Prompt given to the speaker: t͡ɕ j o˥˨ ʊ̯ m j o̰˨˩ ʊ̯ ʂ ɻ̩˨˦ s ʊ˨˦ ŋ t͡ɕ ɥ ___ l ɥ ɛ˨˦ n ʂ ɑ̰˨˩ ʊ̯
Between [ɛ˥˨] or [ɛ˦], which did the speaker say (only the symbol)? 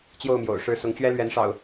ɛ˦